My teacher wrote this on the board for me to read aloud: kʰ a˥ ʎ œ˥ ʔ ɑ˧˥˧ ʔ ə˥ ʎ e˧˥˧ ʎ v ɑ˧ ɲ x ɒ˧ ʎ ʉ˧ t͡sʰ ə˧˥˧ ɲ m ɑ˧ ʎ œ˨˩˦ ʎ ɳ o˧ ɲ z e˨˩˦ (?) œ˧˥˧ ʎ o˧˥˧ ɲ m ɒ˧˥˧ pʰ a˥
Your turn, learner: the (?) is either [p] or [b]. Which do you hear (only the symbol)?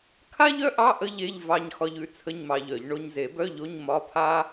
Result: b